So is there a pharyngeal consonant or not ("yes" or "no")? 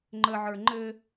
yes